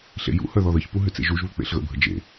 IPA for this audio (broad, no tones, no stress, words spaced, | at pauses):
ɬḛjṵhœ ðɔðəçpu ɦʏt͡sḛʒuʒβʏ k͡pḛɬɣə̰bʱə d͡ʒḛ